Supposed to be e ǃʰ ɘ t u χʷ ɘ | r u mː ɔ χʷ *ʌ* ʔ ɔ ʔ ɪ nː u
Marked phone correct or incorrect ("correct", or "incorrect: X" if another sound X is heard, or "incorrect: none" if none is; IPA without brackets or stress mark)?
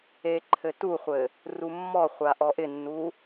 incorrect: a